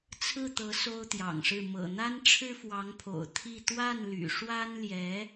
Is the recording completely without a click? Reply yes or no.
yes